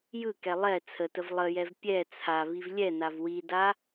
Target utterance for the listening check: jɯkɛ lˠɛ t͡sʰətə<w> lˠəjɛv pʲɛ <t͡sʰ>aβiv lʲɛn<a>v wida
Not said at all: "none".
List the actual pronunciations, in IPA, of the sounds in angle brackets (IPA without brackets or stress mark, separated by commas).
v, t͡sʰ, a